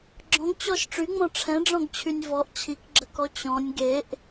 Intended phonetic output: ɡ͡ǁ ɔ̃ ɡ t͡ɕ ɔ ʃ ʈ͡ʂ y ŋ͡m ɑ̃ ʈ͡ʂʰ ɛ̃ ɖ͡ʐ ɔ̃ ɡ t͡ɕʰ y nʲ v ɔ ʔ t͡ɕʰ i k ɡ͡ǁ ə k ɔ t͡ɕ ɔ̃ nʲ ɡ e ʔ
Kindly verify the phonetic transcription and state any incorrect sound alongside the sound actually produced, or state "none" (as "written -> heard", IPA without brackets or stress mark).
ɑ̃ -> ɔ̃